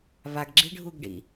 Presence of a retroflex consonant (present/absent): present